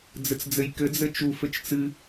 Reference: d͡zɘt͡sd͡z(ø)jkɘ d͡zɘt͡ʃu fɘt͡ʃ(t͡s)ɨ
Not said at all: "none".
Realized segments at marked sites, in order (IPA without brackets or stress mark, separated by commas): ɘ, t͡s